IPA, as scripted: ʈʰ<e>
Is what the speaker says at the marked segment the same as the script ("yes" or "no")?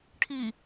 no